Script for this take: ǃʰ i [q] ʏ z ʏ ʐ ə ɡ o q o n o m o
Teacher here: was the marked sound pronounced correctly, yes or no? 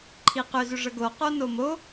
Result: yes